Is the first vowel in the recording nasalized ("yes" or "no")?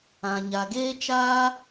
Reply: yes